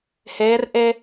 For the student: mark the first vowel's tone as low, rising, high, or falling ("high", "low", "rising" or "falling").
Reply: rising